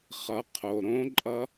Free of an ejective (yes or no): no